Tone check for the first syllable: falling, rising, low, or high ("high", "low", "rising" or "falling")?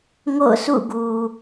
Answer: falling